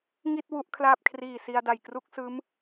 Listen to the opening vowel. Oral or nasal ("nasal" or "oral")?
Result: oral